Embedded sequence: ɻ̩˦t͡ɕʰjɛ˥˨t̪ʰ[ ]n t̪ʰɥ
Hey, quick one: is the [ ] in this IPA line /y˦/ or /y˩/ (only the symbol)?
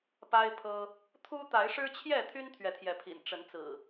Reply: y˦